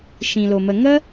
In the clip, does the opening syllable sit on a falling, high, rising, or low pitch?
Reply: low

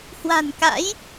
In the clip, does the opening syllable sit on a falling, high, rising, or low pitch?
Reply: low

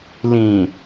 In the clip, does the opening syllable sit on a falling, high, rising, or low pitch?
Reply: low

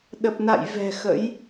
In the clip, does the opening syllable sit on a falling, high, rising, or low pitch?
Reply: low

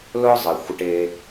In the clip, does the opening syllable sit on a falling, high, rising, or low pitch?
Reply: high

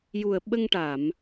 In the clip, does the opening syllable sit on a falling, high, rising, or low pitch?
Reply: low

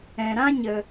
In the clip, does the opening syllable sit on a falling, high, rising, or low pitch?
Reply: low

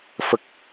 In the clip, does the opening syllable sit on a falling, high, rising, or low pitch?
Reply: low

